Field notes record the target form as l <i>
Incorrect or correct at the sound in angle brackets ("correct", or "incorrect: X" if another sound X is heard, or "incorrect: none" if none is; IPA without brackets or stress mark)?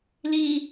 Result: correct